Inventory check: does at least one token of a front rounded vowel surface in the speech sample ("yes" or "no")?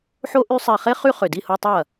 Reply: yes